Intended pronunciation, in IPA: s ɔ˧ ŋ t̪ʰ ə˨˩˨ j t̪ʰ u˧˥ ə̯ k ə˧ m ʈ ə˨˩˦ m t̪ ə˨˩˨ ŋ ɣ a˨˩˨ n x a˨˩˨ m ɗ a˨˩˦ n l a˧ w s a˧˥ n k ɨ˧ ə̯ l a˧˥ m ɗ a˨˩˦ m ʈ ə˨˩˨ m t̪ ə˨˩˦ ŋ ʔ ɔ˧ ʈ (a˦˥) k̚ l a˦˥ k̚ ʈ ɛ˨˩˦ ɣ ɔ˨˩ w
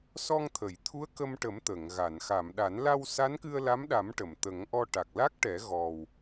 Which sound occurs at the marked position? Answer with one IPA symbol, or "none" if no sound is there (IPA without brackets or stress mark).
a˨˩